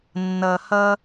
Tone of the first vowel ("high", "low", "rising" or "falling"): low